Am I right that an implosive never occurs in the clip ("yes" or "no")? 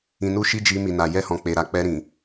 yes